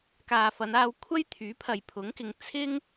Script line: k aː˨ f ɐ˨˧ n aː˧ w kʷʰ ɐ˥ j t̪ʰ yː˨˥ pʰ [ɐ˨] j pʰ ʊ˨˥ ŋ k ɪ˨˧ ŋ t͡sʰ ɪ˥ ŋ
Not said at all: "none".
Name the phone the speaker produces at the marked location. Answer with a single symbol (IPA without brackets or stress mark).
ɐ˨